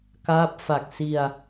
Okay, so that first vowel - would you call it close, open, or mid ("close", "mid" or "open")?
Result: open